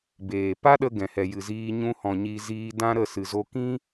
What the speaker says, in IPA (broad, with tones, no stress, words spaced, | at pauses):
beː˨ pa˦ɗə˧ ɡɛ̃˨hɛ˨jɨ˨ziː˧ ɲũ˧hɔ̃˨ ɲi˧ziː˧dã˦ɾə˦˨ sɨ˨zo˧kĩ˦